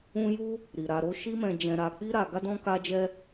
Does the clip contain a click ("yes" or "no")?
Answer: no